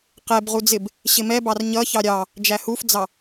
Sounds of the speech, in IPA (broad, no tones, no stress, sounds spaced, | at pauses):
q ɛ b ʁ u d͡z ɪ b | ɕ ɪ m ɛ b ɑ r ɲ ʌ ç ɑ ɾʲ ɑ | d͡ʒ æ h u f d͡z ɑ